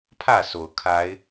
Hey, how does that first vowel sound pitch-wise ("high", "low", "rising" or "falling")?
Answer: falling